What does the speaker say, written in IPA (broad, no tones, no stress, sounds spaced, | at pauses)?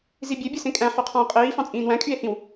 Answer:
z i bʲ ø bʲ ɯ s ẽ kʼ æ̃ ħ y qʰ ɑ̃ o̯ qʼ iː f ɑ̃ t͡sʼ ĩː n w æ̃ kʼ y e̯ h ĩ w